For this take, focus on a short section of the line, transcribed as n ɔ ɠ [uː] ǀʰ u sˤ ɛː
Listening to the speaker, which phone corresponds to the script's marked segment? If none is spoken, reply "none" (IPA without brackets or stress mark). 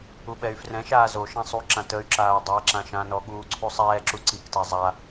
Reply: uː